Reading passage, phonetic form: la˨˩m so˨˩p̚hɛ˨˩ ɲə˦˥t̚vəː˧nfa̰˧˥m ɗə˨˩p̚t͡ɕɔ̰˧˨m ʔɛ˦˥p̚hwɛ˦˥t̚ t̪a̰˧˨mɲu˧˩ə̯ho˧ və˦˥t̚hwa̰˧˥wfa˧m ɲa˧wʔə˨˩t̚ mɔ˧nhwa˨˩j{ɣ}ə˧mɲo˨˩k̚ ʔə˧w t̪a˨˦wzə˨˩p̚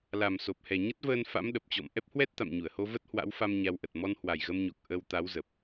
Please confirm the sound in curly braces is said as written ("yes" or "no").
yes